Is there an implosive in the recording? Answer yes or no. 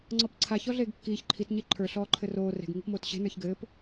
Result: no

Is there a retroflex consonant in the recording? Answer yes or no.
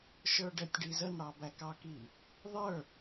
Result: yes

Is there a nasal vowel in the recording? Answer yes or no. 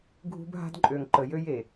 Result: no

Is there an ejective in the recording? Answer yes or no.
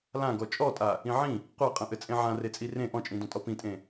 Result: yes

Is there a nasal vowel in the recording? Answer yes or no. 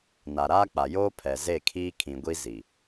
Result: yes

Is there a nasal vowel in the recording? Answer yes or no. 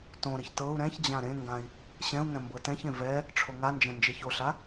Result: yes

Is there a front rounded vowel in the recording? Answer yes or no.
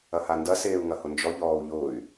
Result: yes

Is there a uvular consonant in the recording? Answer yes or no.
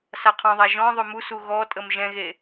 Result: yes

